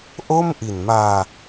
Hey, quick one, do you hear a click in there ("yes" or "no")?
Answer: no